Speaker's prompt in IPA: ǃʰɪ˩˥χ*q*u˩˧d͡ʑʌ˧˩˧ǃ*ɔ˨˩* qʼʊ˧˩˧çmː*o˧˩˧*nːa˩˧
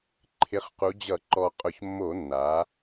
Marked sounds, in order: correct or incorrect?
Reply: correct, correct, correct

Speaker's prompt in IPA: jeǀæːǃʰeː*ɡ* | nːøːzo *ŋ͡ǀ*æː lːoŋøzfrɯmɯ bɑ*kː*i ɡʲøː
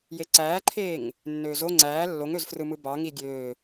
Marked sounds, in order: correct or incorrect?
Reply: incorrect, correct, incorrect

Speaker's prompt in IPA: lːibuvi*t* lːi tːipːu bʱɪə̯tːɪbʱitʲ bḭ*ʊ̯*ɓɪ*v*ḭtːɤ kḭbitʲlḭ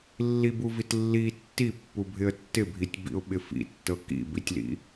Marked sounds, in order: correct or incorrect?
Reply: correct, correct, incorrect

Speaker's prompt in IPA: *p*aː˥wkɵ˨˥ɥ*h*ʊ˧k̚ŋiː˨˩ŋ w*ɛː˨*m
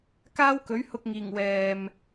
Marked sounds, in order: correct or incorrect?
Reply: incorrect, correct, correct

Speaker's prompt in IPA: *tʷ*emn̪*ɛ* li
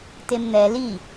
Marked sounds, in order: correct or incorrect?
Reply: incorrect, correct

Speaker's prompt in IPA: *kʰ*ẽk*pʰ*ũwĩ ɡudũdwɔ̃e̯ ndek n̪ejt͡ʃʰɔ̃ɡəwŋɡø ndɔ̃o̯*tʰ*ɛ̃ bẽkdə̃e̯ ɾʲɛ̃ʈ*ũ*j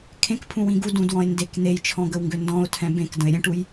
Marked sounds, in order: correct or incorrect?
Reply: correct, correct, correct, incorrect

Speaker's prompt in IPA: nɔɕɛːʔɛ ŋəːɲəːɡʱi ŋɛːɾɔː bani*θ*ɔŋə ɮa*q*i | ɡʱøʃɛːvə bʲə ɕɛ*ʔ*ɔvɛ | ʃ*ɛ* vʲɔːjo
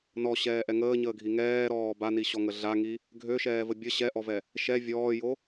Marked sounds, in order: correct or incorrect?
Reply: incorrect, incorrect, correct, correct

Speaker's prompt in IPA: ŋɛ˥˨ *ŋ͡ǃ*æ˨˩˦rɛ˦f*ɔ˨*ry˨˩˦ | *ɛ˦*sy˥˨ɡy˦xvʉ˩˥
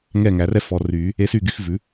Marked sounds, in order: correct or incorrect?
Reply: incorrect, correct, incorrect

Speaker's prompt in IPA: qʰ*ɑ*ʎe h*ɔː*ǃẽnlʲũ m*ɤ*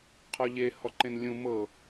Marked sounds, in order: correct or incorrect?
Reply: incorrect, incorrect, correct

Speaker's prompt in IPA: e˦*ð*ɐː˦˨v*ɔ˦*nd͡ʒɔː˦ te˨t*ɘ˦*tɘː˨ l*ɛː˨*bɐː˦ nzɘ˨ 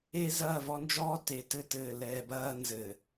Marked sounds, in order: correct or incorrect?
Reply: incorrect, correct, correct, correct

